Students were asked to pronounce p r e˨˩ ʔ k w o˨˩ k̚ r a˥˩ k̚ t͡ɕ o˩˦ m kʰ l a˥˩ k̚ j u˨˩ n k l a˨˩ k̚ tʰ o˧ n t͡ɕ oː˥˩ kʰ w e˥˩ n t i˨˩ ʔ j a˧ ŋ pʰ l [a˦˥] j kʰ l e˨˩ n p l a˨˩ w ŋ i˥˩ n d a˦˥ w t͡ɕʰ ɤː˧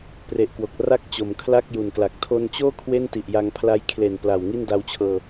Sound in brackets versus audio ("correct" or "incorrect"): correct